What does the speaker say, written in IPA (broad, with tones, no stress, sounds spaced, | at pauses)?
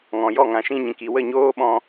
ŋ ɔ̃˨ j ɔ˦˨ ŋ ã˨ ʃ ĩ˧ ɲ ĩ˨ k i˨ w ə˦˨ ɲ oː˦ ɓ ɔ̃˧